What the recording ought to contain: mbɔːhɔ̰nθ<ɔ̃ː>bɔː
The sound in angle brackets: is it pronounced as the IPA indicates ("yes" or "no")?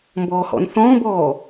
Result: yes